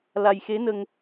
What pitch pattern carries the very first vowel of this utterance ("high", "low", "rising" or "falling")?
low